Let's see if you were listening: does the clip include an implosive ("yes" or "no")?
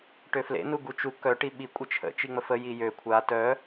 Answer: yes